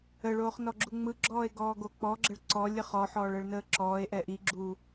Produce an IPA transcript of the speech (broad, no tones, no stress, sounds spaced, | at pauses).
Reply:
ə ɭ oː χ n ɔ ɡ͡ǁ u ŋ͡m ɯ ɡ͡ǁ ɔː e̯ ɡ ɔː ɡ o k͡p ɔ ɡ͡ǁ ə ɭ ǀ ɔ lʲ ə χ ɔ ħ ɔː ɭ ə ɭ n əː ǁ ɔː e̯ ʔ ɛ ʔ i ɡ͡ǁ uː